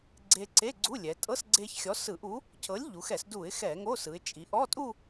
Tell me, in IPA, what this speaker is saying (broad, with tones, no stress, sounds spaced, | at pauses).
ɡ͡ǀ e˧ ǀ e˧˥˧ ɡ͡ǀ u˧˥˧ lʲ ɛ˩˧ tʼ ɤ˧˥˧ s ɡ͡ǀ e˧ ç xʲ ɔ˨˥ s ɯ˧˩˧ ʔ u˨˥ | cʰ ɤ˨˥ lʲ ʎ u˩˧ x ɛ˧˩˧ s d u˧˩˧ ɪ̯ x ɛ˧˩˧ ŋ o˧˥˧ s ɯ˩˧ ɪ̯ t͡ʃʼ i˩˧ ʔ ɔ˧˥˧ tʼ u˥˧